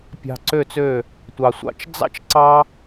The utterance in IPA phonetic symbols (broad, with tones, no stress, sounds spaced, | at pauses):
pʲ ɑ̤˧ ǀ ø˦˨ t͡s ø˦˨ | tʷ ɑ˨ sʷ ɑ̰˧ t͡ʃ d͡z ɑ̰˦ t͡ʃ ǀ ɑ˦